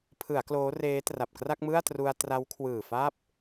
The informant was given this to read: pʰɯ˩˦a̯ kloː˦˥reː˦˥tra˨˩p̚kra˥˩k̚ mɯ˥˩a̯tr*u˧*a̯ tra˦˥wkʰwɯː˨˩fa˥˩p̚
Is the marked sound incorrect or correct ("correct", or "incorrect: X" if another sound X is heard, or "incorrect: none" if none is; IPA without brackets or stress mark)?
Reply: correct